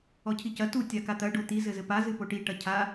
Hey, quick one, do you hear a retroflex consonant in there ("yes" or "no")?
yes